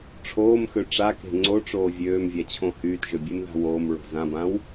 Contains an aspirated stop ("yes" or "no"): yes